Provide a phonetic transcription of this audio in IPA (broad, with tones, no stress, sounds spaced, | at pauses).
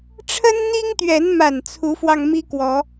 ʈ͡ʂʰ ə˦ n n̪ i˦ ŋ t̪ ɥ ɛ˨˦ n m a˨˩ n t͡sʰ u˨˦ f w ɑ˧ ŋ m i˦ k w ɔ˨˦